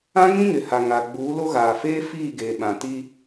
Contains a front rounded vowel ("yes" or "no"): no